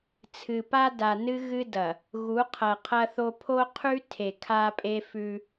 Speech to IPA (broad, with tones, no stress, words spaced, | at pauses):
t͡sʰɨ˨pa˦ da˨nɨ˦ ɣɨ˦dɐ˨ | ɣu˨˦qʰɐ˨qʰɐ˦θo˦ pʰo˦qʰʉ˦ tʰe˨kʰa˦pʼe˦fʉ˦